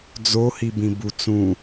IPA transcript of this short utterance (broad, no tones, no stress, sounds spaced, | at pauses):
d͡z o h i b ĩ b u t͡s ũ